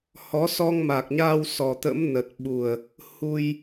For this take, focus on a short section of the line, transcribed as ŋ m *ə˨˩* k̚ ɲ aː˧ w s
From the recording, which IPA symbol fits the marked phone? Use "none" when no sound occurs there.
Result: a˨˩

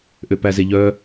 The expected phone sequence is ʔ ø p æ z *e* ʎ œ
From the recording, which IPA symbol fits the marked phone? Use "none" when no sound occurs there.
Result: e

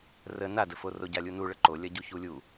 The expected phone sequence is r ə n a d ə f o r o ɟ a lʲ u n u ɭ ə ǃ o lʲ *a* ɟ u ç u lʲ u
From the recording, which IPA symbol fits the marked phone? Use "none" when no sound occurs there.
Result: ɐ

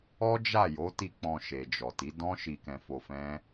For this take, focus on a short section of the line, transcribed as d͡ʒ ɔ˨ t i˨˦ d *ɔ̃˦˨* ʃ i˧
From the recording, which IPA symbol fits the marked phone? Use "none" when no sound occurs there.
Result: ɔ̃˦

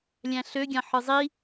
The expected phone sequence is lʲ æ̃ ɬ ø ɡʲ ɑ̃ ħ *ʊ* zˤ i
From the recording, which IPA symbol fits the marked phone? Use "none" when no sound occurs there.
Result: ɯ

